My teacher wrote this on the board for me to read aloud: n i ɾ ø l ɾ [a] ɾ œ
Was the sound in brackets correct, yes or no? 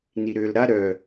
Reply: yes